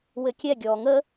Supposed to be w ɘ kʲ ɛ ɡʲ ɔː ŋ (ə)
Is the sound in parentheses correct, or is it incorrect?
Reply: correct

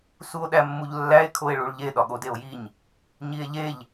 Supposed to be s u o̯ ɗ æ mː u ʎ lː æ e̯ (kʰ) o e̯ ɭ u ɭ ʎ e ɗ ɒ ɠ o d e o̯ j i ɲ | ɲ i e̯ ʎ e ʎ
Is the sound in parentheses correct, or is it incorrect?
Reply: correct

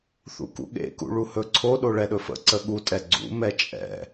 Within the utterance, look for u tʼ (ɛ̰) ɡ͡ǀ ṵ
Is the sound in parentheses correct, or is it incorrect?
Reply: incorrect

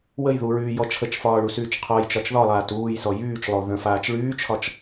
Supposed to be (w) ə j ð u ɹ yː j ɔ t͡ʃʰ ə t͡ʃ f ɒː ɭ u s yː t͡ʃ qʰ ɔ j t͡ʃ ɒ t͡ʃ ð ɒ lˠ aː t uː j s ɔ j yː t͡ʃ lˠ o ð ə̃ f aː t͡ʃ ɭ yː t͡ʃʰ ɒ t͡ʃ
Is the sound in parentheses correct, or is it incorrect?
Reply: correct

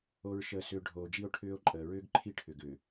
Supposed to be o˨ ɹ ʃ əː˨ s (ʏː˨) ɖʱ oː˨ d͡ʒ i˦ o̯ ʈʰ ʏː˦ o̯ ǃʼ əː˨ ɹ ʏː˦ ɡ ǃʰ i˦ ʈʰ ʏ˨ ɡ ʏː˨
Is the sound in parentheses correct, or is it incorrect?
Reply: correct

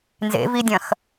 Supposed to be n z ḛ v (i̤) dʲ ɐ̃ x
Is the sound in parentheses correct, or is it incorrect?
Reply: incorrect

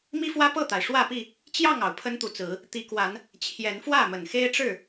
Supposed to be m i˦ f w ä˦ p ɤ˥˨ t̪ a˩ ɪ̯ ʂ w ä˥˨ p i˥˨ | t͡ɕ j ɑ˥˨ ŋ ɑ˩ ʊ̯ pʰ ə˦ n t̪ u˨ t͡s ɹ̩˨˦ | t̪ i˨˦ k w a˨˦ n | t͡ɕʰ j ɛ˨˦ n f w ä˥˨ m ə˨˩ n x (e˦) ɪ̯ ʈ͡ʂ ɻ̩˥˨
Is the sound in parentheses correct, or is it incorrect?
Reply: correct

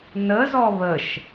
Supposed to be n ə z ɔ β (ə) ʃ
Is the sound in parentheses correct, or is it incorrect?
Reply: correct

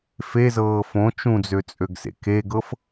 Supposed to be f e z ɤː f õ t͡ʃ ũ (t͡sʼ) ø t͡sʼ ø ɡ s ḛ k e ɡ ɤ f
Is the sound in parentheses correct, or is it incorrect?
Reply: incorrect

